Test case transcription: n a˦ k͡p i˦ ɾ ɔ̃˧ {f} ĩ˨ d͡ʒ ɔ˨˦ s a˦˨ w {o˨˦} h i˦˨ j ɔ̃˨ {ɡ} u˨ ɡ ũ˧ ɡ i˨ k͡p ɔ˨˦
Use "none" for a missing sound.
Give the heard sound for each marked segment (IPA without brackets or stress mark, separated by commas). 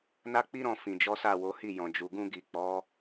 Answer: f, o˨˦, d͡ʒ